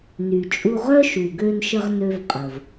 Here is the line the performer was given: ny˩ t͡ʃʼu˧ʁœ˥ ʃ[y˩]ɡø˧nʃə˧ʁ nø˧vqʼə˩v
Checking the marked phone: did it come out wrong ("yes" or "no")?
yes